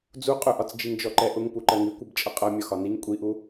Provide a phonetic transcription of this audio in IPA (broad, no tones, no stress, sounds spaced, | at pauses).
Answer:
d͡z u qʼ ʊ ʔ ɒ t͡s d͡ʒ i ŋ d͡ʒ ɔ ǃ ɛ ʔ ʊ ŋ p u ǃ ɜ ŋ i kʷ i b t͡ʃʼ ʌ qʼ ʌ mʲ ɒ x ɒ n i ŋ kʷʼ i ʔ u